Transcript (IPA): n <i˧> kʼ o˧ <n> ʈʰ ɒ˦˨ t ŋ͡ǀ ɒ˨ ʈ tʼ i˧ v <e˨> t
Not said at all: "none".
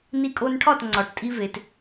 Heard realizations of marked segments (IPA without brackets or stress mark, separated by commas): i˧, n, e˨